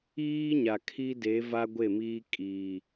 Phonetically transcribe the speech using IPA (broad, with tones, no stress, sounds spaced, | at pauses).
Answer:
iː˦ ɲ a˨ kʰ i˦ d e˨˦ v a˦ ɡʷ e˦˨ m iː˦ kʼ iː˨